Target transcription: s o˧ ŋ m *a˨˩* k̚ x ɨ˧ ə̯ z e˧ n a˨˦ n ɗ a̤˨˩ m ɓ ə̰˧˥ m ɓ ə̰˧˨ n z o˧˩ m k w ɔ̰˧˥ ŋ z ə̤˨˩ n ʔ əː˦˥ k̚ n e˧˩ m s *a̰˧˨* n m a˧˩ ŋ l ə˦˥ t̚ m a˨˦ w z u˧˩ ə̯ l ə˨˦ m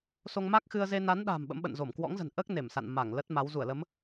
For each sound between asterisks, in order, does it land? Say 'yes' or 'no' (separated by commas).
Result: no, yes